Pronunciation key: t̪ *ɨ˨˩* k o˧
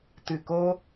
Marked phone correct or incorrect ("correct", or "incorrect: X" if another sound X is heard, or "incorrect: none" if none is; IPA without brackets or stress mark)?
correct